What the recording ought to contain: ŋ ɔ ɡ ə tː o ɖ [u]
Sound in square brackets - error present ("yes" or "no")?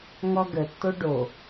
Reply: yes